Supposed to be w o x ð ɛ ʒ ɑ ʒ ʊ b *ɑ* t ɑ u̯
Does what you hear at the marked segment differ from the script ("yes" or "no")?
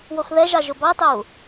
no